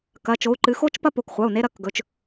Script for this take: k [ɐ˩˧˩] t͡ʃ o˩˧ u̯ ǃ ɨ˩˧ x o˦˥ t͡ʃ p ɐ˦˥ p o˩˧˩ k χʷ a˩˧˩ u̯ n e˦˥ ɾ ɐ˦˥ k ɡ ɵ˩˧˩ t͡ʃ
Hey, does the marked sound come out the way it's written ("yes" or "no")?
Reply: yes